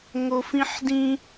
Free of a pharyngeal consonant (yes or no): no